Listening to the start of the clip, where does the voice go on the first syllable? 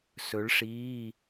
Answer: rising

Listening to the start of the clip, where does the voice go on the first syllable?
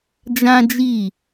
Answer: high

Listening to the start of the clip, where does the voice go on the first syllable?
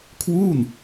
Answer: falling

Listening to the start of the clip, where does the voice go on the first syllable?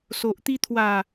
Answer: low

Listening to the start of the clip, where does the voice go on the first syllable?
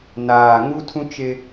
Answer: low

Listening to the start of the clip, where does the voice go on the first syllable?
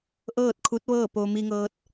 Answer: falling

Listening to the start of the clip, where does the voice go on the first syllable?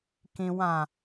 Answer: low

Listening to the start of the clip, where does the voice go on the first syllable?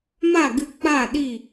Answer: falling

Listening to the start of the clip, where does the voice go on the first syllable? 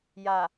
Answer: low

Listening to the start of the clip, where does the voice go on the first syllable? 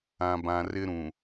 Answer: low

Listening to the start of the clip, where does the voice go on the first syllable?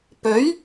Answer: rising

